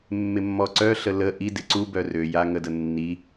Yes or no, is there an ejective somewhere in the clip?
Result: no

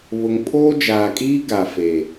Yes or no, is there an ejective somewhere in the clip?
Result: yes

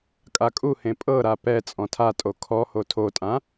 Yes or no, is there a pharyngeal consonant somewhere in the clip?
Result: no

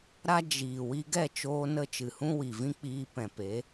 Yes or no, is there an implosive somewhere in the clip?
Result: no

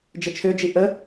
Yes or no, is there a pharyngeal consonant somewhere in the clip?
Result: no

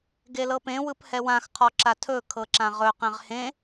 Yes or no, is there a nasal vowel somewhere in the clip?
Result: yes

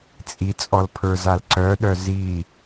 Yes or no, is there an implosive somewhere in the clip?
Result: yes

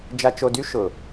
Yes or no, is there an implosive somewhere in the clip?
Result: no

